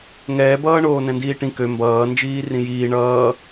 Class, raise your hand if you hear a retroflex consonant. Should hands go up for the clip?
yes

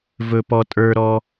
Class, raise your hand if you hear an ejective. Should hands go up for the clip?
yes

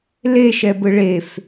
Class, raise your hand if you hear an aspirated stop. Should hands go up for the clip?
no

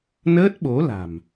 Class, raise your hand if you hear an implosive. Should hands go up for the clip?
yes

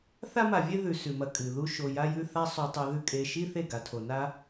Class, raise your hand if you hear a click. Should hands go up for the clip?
no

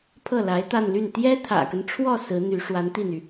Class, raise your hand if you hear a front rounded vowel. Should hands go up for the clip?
yes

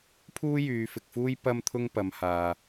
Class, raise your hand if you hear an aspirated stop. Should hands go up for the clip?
yes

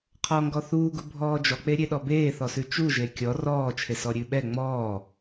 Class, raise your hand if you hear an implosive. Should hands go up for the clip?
yes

